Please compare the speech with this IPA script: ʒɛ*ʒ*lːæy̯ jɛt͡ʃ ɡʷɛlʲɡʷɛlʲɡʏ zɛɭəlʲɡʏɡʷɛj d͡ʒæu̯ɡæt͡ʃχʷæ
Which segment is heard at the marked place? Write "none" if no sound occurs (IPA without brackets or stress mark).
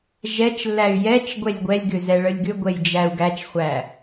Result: t͡ʃ